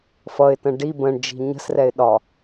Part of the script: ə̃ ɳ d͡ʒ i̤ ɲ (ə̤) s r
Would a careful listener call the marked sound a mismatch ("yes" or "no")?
no